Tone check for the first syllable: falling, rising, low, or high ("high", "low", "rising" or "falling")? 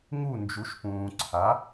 falling